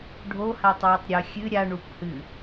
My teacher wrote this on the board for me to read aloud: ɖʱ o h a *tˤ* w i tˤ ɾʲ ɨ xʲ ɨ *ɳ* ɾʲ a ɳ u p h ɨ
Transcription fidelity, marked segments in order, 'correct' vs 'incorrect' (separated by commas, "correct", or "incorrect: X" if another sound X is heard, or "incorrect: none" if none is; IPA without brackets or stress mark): correct, incorrect: none